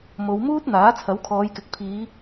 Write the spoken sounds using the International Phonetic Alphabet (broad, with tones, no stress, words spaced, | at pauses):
mo˨˧wmuː˥t̚ n̪aː˨˥t͡sʰɐ˨˥wkʰɔː˨˧jkɪ˨˥k̚ pʰiː˨˧